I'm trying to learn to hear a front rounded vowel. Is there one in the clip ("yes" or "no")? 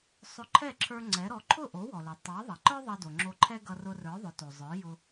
no